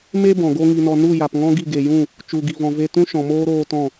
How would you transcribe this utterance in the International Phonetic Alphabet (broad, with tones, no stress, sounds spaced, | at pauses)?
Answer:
m e˦ b ɔ̃˨ ɡ o˦ ŋ i˧ n ɔ˧ n u˦˨ j a˨ p ŋ ɔ̃˦ ɡ i˦˨ ɡ e˨ j ũ˦˨ | t͡ʃ u˨ ɡ i˨ v ɔ̃˨ v e˧ t ũ˦ ʃ ɔ̃˨ m oː˦ ɾ oː˧ t ɔ̃˦˨